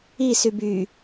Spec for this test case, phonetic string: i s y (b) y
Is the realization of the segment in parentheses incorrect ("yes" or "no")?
no